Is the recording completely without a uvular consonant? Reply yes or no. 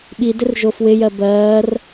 yes